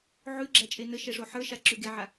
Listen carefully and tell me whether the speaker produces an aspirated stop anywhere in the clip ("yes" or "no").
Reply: no